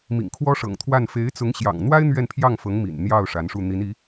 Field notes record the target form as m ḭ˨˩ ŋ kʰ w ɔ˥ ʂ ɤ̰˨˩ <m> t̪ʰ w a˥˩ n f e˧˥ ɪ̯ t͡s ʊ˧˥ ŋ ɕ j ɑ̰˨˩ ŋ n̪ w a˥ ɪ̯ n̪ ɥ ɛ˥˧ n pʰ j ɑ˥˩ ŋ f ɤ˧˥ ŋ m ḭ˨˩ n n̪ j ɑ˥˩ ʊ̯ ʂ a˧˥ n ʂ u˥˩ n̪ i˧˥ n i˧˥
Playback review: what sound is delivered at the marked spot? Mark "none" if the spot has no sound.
ŋ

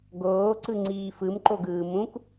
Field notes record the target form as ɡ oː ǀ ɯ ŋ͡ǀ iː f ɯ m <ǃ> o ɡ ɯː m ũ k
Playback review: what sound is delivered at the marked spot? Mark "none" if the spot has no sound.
ǃ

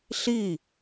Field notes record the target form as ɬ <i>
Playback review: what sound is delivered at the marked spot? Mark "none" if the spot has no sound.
i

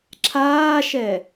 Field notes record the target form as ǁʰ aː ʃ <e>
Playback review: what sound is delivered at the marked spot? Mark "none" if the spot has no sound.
ɛ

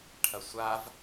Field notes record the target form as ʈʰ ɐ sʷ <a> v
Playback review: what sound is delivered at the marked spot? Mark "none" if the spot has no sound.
a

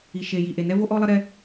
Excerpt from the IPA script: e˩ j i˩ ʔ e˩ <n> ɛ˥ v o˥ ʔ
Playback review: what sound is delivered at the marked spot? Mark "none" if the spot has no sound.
n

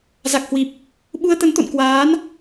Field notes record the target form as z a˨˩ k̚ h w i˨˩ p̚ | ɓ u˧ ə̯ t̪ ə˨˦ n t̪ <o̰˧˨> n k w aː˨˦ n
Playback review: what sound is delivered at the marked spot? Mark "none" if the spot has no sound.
o̰˧˨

